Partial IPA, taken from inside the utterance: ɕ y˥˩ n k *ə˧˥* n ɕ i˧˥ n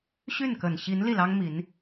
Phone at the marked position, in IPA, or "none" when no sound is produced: ə˨˩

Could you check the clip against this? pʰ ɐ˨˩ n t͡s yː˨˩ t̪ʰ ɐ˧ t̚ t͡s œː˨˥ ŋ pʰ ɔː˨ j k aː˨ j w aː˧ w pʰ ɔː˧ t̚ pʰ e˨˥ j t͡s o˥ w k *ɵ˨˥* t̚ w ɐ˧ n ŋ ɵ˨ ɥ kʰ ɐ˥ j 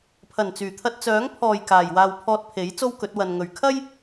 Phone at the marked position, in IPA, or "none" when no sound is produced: ɵ˨˥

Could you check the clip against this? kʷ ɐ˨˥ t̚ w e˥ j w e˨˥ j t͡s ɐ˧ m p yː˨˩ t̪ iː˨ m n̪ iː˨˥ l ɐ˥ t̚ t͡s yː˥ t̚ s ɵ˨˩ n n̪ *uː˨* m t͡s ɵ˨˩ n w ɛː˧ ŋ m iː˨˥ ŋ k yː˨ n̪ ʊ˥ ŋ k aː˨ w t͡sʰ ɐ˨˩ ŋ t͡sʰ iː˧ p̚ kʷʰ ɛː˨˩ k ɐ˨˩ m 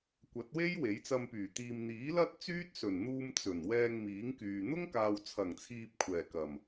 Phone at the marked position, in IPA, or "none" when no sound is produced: uː˧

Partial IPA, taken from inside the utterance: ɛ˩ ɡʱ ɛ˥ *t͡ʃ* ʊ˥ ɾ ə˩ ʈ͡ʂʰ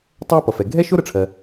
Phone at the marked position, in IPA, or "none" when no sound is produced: ʃ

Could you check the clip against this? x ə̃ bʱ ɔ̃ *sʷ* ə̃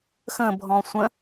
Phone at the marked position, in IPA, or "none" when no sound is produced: sʷ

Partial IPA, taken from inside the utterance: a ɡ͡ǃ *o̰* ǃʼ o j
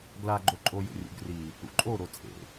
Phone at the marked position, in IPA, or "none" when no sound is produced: o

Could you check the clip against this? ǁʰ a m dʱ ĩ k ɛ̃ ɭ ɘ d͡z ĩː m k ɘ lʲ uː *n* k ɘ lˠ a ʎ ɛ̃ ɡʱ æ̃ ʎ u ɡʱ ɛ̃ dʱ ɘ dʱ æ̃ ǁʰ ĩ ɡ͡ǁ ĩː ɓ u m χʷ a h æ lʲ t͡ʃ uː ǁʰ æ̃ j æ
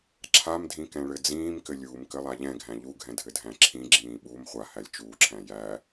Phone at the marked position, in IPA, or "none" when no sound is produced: m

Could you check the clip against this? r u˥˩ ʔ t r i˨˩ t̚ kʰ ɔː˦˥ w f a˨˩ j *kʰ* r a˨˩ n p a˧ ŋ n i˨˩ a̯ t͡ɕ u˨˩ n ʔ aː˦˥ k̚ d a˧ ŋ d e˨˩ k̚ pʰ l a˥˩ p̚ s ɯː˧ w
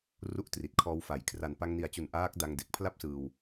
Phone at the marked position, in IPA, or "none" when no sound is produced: kʰ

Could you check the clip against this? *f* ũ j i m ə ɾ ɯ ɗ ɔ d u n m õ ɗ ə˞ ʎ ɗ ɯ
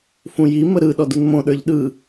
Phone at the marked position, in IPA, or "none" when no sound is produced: f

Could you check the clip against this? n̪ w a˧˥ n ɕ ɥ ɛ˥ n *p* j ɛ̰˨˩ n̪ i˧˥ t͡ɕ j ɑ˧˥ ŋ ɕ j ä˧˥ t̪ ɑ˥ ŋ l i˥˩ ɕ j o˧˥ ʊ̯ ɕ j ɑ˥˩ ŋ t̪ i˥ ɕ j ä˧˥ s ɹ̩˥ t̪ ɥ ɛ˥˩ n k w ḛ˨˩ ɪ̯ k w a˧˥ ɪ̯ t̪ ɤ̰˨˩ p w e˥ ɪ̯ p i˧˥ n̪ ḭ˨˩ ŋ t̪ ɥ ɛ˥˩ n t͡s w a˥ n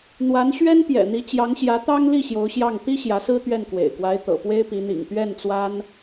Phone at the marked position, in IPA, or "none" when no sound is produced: p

